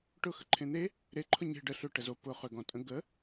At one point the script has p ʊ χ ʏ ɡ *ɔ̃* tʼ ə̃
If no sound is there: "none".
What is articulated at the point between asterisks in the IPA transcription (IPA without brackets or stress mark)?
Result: ɔ̃